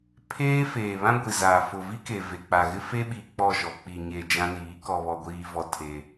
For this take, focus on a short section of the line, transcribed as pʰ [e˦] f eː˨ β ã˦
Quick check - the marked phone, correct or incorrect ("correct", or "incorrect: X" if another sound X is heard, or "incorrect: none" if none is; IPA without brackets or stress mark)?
incorrect: eː˦